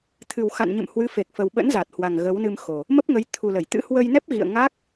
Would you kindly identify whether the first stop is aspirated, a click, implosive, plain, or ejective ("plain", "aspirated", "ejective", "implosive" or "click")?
aspirated